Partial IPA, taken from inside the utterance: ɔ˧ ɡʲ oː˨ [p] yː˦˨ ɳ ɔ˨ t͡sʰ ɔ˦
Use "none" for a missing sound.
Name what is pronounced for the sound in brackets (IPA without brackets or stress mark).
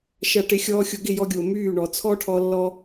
m